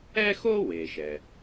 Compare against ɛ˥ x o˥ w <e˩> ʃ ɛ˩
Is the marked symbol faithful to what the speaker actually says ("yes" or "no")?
yes